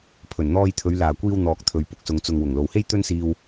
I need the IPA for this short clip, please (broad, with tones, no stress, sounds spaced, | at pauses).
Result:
pʰ ɵ˨˩ n n̪ ɔː˧ j t̪ʰ ɵ˨˧ ɥ l aː˨˩ kʷ iː˧ w n̪ ɔː˨ k̚ t̪ʰ ɵ˨ ɥ p ʊ˨ k̚ s ʊ˨ ŋ t͡s ʊ˨ ŋ w ʊ˨˩ ŋ l o˨ w h e˥ j t̪ ɵ˥ n s iː˧ w